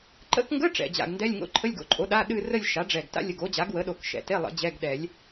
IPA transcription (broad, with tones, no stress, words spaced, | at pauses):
ǃə̰˧˥˧kŋɡə˧˥˧ ʈ͡ʂɛ̰˨˩d͡ʑa̰˨˩ɡndɛ˧˥˧lʲŋo̰˧˥˧ ǃʰə˧˥˧lʲɡo̰˩˥ǃʼo˩˥ɗa˧˥˧ ɗɨ˥˧ rə˥˧lʲʃa˩˥ɖ͡ʐɛ˨˩ɡ ta̰˥˧lʲə˨˩ɡo˩˥ d͡ʑa˩˥ɡwə˩˥ɗo˨˩˦k ʃɛ̰˨˩te˧˥˧lˠə̰˨˩˦ d͡ʑɛ˧˥˧ɡɗɛ˨˩˦lʲ